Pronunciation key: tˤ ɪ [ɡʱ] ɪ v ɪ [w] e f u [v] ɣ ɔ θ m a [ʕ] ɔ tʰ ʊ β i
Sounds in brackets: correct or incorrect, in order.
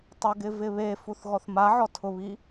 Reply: incorrect, incorrect, incorrect, correct

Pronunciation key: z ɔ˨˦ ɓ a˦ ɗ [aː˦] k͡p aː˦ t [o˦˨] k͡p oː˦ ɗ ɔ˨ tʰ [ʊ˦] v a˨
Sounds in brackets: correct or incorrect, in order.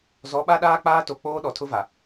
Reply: correct, incorrect, correct

